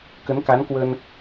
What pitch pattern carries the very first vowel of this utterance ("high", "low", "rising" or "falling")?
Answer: rising